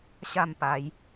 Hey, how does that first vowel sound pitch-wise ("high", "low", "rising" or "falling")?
falling